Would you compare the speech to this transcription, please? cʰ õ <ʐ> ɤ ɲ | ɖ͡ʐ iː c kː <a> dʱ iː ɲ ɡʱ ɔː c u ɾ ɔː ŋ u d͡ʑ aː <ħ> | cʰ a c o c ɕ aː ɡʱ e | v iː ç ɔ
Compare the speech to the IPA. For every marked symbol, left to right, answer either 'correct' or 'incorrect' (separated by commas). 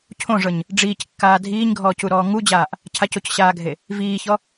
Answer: correct, incorrect, incorrect